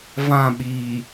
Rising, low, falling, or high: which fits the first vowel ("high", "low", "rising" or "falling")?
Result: falling